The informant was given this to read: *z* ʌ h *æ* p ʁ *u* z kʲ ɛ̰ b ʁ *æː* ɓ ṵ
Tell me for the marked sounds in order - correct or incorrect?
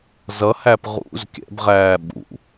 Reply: correct, correct, incorrect: ṵ, correct

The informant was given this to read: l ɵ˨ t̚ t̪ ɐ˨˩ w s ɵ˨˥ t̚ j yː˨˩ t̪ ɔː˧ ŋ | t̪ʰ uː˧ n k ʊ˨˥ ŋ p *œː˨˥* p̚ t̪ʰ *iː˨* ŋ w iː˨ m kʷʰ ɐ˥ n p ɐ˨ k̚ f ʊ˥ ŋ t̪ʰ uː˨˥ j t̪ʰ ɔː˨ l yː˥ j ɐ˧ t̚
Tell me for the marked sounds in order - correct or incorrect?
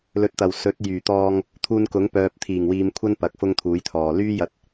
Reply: incorrect: œː˨, incorrect: iː˨˩

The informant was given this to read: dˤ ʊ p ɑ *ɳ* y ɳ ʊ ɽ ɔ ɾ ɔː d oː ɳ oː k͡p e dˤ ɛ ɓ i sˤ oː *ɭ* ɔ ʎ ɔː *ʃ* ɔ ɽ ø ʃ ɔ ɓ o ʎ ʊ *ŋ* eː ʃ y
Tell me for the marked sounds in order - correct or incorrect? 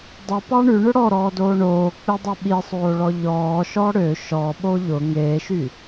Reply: correct, correct, correct, correct

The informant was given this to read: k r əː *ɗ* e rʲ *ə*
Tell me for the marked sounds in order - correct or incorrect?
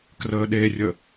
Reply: correct, correct

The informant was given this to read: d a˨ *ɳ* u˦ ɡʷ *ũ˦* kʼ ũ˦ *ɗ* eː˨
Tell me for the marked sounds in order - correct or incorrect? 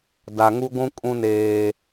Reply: incorrect: ŋ, correct, incorrect: n

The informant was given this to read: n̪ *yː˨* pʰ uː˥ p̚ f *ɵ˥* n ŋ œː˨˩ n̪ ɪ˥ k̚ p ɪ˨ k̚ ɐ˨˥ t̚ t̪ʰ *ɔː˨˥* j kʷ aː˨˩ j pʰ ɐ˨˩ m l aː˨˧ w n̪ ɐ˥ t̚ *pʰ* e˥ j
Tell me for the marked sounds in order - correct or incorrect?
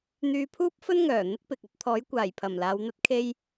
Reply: incorrect: yː˧, correct, correct, incorrect: kʰ

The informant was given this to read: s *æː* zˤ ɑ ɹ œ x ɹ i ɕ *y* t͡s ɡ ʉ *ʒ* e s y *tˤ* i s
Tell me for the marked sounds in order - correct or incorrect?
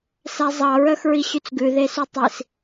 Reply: incorrect: æ, correct, incorrect: ð, correct

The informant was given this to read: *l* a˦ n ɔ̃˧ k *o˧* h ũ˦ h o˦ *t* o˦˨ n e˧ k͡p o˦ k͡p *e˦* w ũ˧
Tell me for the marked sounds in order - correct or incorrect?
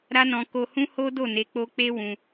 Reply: incorrect: ɾ, correct, incorrect: d, correct

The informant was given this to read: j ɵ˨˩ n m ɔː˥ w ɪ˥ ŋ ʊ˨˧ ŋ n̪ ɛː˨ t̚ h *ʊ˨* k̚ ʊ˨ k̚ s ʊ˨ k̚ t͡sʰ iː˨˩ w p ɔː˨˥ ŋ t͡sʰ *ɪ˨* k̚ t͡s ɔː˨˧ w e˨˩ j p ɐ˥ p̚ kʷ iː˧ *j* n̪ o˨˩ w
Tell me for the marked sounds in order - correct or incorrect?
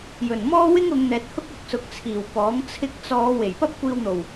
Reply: incorrect: ʊ˥, incorrect: ɪ˧, incorrect: w

